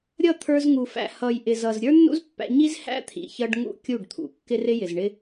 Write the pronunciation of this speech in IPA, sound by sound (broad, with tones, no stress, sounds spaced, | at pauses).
ɾʲ ʌ˦˨ t̪ʰ ə˞˧ z ŋ u˨ f æ̰˨ h ʌ˨ j ʔ ɪ˨ z ʌ˨ z ɾʲ ə˞˦ nː ṵ˦ z pː æ̰˧ ɲ i˦ z h æ̰˦ t̪ʰ ḭ˨ ç ʌ˧ ɖ ŋ ṵ˧ kʲ u˦˨ ɖ t̪ʰ ṵ˨ kː ɪ˦ r ɪ˦ j ɪ˨ z ɳ ɪ˦